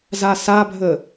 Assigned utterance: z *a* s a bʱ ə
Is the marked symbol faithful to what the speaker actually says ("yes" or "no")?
yes